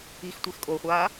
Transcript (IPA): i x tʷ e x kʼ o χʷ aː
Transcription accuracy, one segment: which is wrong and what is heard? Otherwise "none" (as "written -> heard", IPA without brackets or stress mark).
none